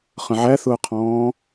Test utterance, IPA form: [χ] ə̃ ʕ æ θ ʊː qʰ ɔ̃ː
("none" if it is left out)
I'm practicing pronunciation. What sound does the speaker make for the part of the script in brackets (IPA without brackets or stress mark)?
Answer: χ